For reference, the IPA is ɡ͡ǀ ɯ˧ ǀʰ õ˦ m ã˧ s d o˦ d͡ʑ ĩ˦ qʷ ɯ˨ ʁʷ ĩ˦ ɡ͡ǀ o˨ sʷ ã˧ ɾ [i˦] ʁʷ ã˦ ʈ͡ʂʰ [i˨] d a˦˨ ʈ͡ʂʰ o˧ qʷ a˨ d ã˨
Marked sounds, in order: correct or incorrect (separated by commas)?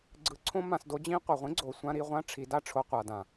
incorrect, incorrect